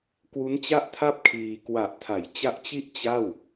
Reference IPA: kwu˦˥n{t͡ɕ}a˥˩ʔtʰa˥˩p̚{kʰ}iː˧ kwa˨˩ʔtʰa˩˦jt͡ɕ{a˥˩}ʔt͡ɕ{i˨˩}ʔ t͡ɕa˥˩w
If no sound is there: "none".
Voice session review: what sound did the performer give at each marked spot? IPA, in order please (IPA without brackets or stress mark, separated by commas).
t͡ɕ, kʰ, a˦˥, i˥˩